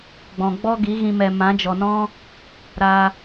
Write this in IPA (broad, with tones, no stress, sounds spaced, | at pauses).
ɡ͡b ɔ̃˨ ɡ͡b ɔ˦ ɡ i˨˦ ɣ ĩ˧ m ɛ˨ m ã˨˦ d͡ʒ ɔ˨ n ɔ̃˦ | ɾ a˧